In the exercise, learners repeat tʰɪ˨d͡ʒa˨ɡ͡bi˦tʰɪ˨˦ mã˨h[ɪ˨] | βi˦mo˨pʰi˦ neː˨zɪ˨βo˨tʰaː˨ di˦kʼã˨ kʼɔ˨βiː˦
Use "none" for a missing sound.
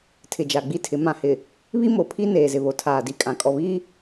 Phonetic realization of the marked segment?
ɪ˨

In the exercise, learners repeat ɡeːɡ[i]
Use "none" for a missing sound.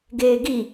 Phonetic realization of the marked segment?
i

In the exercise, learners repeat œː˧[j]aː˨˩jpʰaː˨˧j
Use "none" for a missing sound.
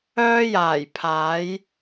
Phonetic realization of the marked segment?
j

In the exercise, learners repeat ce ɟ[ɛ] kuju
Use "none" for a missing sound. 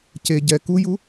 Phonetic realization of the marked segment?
ɛ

